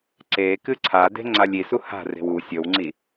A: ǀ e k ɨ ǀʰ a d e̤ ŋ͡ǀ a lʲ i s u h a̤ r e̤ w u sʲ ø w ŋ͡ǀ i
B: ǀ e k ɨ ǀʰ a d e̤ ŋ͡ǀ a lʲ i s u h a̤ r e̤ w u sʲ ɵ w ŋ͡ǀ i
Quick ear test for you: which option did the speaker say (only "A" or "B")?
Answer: B